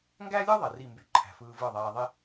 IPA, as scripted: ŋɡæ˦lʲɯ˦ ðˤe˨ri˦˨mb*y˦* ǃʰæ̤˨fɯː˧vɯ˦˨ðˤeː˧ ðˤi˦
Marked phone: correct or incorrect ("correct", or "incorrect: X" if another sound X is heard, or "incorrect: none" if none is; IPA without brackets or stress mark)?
correct